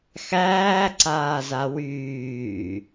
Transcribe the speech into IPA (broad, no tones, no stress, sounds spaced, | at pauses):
x æː ǀ aː z a w yː